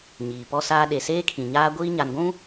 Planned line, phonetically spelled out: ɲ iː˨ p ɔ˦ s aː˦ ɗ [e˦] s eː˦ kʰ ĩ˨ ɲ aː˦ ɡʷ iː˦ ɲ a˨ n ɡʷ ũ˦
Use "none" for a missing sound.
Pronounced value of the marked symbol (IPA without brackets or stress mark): e˨